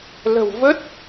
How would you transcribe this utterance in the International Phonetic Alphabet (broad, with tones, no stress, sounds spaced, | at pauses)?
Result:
l ə̤˨˩ w v ə˦˥ t̚